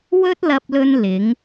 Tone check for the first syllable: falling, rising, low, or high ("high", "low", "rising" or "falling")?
high